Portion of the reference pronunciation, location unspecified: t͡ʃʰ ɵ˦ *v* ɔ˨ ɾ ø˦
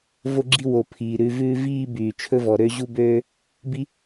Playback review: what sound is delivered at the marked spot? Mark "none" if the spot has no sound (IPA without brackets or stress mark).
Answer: v